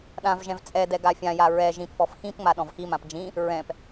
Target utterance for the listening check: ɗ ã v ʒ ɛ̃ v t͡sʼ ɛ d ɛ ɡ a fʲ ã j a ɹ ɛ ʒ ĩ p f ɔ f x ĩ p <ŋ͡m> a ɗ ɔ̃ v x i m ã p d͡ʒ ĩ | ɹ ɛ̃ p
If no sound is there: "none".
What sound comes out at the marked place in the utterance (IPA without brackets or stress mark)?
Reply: ŋ͡m